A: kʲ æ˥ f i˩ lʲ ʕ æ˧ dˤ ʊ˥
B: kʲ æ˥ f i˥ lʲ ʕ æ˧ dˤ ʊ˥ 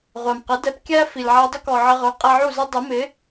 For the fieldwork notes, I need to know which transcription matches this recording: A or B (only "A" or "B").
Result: A